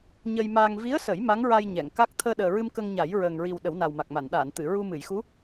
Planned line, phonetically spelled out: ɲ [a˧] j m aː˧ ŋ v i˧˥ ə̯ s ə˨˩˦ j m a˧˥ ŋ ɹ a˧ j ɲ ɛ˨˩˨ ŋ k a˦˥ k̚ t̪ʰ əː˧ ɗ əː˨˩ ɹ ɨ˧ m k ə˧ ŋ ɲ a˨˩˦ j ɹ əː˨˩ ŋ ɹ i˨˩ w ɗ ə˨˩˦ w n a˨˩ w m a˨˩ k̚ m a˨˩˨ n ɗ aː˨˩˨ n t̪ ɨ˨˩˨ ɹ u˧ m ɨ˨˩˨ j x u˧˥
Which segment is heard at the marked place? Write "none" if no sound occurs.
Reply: ə˧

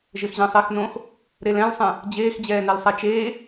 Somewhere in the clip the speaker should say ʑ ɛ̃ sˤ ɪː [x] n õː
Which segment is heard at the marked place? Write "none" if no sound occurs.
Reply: x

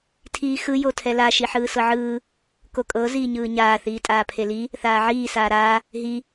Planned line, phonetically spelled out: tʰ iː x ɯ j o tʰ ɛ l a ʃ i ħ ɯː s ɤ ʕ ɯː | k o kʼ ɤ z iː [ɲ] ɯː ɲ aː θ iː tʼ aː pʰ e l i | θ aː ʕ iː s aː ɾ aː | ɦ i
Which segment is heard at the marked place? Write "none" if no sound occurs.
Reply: ɲ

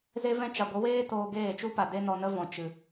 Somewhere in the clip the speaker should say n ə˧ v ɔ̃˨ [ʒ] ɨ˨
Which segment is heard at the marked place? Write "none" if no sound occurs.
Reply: t͡ʃ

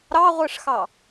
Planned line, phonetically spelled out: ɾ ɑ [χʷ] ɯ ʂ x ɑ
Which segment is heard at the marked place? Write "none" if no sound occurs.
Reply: ʁʷ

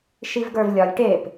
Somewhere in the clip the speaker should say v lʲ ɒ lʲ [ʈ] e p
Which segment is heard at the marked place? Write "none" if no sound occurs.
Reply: ʈ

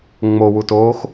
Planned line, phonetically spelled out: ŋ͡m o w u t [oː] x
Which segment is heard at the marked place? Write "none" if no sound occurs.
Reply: oː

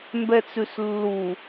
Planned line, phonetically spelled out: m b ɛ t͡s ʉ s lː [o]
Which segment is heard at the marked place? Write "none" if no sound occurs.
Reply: u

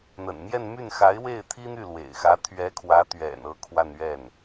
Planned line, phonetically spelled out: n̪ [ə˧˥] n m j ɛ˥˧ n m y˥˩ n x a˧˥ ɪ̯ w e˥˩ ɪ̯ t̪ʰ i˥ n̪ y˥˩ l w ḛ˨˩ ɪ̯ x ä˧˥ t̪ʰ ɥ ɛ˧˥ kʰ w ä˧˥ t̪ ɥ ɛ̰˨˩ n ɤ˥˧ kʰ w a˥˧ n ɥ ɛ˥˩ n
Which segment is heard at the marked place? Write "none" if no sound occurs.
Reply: ə̰˨˩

